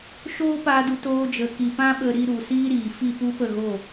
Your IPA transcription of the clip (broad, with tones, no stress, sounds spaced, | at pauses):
ʃ oː˦ p a˧ d u˧ t oː˧ d͡ʒ ə˨ k i˨ p ã˦ ɓ ə˧ ɾ i˧ ɾ u˨ s iː˦ ɾ iː˨ f i˦˨ p u˦ p ə˦˨ ɣ o˦˨